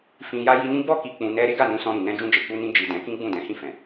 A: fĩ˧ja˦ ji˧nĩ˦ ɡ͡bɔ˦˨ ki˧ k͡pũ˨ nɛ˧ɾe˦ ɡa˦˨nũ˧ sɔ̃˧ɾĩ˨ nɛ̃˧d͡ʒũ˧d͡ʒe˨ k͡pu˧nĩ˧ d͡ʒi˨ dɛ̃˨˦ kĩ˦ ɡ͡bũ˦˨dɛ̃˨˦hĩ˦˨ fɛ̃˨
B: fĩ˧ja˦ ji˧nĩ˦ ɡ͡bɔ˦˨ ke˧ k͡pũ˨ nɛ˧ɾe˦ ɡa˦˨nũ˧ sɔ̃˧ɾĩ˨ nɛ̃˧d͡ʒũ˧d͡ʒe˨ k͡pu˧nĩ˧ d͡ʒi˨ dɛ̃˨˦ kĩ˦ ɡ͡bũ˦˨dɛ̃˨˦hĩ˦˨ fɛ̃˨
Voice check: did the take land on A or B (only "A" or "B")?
A